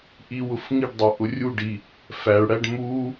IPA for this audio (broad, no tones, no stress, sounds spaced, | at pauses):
ʔ i w ʊ f ŋ i ɖ dˤ ʌ ʔ ʊ rʲ u ɖ i | f æ ɭ ɽ æ ɖ m u